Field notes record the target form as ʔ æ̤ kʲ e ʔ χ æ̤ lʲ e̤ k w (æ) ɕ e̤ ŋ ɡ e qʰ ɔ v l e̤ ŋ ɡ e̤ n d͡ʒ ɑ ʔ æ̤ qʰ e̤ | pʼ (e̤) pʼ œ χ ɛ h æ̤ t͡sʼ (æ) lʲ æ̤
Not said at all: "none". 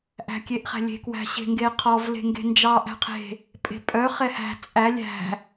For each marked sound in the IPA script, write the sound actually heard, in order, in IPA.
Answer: æ̤, e̤, æ

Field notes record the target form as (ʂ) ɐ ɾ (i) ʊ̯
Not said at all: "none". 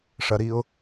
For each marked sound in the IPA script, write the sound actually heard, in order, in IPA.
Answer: ʂ, i

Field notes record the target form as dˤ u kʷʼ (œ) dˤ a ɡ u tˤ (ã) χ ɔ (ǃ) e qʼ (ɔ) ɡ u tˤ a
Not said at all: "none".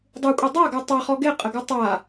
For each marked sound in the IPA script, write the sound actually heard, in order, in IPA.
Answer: œ, a, ɡ, ə

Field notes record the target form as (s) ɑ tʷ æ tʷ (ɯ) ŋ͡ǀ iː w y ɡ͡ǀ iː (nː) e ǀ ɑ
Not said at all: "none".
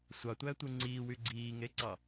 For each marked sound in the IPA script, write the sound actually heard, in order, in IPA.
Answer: sʷ, ɯ, ŋ

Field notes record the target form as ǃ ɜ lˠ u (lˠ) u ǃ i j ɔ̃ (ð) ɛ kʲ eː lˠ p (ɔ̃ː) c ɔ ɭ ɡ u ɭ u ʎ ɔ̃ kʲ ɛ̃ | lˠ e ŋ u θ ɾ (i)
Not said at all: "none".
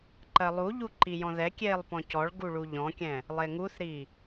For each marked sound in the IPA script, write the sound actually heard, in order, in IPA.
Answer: ʎ, ð, ɔ̃, i

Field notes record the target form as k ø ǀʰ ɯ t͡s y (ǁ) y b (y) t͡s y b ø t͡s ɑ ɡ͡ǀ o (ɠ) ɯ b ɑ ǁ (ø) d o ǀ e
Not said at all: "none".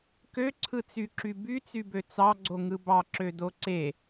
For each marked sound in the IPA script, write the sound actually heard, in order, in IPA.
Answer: ǁ, y, ŋ, ø

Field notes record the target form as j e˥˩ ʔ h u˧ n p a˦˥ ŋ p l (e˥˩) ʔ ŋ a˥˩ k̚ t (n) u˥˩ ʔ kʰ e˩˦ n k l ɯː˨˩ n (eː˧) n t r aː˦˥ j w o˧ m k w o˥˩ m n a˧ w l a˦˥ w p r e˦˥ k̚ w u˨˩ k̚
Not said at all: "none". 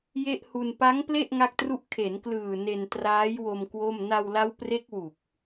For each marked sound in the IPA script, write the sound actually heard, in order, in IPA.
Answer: e˥˩, r, e˧

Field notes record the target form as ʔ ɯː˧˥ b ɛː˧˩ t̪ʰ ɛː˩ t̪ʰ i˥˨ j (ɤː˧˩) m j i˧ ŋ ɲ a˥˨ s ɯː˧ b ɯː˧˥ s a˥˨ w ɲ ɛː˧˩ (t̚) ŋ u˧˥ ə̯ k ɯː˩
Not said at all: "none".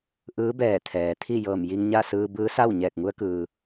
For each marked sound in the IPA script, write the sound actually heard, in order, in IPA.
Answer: ɤː˧˩, k̚

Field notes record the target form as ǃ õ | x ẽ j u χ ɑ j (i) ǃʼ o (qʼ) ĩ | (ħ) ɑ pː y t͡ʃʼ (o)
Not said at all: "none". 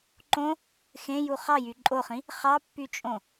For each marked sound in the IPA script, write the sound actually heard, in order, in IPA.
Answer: y, χ, χ, õ

